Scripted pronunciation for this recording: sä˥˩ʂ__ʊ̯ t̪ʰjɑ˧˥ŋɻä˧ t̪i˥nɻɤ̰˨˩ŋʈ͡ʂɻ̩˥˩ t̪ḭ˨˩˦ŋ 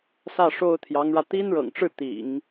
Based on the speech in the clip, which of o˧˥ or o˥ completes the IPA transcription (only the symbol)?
o˥